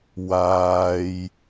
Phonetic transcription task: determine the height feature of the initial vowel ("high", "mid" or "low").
low